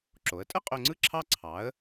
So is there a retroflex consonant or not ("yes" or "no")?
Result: no